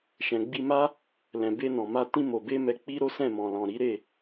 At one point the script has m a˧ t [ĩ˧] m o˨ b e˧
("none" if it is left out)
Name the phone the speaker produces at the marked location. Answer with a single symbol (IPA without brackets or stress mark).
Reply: ĩ˧